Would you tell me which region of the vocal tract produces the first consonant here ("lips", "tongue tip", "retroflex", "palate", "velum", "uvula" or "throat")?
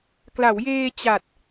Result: velum